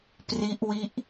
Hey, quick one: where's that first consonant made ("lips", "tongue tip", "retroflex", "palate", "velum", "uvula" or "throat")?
lips